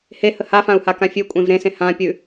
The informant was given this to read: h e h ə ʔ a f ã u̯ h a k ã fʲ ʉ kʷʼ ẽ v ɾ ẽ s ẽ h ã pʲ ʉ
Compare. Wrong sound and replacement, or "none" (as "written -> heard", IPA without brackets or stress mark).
ʔ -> h